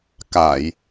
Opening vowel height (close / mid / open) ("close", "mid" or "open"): open